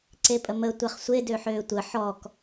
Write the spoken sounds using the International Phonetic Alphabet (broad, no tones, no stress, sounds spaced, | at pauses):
ǀ e pʼ ə m ə tʷ ɛ χ sʷ e d ø ħ øː tʷ ə ħ ɔ k